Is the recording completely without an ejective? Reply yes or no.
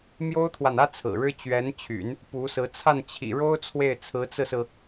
yes